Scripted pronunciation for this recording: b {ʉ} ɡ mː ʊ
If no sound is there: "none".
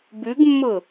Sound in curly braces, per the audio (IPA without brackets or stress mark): ʉ